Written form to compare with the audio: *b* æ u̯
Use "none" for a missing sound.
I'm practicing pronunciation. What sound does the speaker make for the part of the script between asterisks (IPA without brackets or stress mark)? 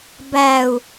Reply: b